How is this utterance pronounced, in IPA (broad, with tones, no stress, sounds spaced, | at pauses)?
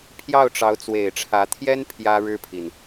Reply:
pʰ j ɑ˥˩ ʊ̯ ʈ͡ʂ ɑ˧˥ ʊ̯ t͡s w e˨˩ ɪ̯ ʈ͡ʂʰ ä˧˥ t̪ʰ j ɛ˥ n pʰ j ä˥ ɻ ɻ̩˥ pʰ i˨ n